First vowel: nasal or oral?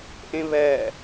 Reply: nasal